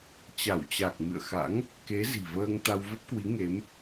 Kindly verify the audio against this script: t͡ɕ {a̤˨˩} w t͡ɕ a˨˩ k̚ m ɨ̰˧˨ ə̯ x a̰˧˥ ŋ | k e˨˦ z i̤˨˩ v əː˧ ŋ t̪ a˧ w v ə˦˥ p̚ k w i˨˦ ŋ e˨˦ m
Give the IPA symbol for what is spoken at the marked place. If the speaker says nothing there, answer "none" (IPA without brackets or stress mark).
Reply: a˧˩